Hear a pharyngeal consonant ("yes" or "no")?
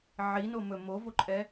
yes